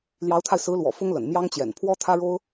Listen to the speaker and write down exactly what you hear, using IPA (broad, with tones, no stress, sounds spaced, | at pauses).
l j ɑ˧˥ ʊ̯ t̪ʰ a˧ ɪ̯ s ɹ̩˧˥ l w ɔ̰˨˩ f ʊ˥ ŋ l ə̰˨˩ n m j ɑ˥ ŋ t͡ɕ j ɛ̰˨˩ n pʰ w ɔ˥ t̪ʰ ä˥ ɻ o˥ ʊ̯